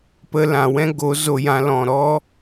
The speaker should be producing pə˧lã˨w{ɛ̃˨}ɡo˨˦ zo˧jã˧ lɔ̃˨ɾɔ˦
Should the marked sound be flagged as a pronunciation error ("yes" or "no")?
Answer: yes